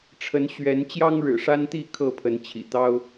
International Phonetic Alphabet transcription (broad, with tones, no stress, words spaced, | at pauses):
ʈ͡ʂʰə˨˦nɕɥɛ˨˦n t͡ɕjɑ˦ŋɻɻ̩˨˩ʂa˦nt̪i˥˨ kʰɤ˥˨pʰə˨˦nt͡ɕʰḭ˨˩ t̪ɑ˦ʊ̯